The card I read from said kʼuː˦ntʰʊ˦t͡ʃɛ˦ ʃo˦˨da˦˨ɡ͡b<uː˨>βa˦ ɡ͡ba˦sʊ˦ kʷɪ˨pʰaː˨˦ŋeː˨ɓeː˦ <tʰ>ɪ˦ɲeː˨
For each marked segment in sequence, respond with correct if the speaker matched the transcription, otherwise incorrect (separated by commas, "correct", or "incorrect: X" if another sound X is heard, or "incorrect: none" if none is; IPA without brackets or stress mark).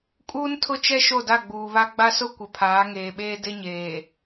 correct, incorrect: d